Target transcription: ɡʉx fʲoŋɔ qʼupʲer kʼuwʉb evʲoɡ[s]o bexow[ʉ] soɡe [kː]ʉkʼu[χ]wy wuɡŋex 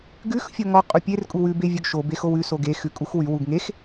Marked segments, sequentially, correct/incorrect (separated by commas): incorrect, correct, incorrect, incorrect